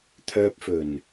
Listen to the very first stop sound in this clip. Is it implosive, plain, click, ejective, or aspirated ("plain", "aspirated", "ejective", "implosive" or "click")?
aspirated